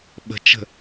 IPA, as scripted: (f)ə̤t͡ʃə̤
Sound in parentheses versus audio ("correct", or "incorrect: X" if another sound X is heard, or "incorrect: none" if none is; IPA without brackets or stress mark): incorrect: ɓ